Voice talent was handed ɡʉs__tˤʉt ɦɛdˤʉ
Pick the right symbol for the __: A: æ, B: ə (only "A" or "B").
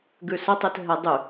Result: B